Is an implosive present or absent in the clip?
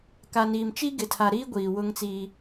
absent